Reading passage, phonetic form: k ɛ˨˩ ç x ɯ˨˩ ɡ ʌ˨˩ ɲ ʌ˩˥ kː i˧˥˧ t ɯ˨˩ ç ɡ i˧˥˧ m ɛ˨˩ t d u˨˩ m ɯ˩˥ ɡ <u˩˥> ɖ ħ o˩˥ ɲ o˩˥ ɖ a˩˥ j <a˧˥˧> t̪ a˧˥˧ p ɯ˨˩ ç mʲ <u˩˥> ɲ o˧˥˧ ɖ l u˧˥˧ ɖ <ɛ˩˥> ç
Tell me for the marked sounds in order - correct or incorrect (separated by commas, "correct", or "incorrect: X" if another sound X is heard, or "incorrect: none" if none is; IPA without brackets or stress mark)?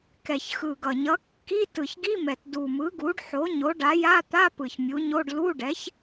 correct, correct, correct, correct